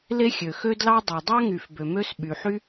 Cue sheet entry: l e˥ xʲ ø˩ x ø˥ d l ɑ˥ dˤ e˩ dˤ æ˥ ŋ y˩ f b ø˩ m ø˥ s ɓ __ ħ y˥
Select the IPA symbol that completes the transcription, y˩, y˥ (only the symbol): y˩